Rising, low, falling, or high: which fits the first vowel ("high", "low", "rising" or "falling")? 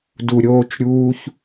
low